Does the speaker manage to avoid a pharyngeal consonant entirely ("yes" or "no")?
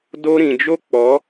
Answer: yes